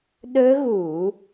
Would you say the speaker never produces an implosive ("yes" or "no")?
no